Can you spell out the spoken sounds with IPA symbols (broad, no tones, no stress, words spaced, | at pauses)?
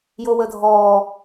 jowədʱɔ